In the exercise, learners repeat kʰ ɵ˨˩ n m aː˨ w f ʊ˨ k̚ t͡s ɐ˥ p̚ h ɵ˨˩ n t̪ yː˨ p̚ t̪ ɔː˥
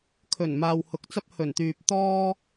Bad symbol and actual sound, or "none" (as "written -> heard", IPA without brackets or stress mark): f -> h